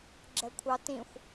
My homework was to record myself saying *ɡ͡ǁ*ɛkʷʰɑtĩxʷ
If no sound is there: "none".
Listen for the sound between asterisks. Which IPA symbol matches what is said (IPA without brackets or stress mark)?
ɡ͡ǁ